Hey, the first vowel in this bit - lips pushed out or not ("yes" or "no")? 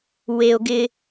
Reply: no